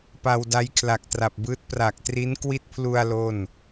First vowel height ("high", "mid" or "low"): low